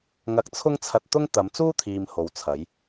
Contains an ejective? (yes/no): no